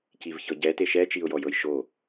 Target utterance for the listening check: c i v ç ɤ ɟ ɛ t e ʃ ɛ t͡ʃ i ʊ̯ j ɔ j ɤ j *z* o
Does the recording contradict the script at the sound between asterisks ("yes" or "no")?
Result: yes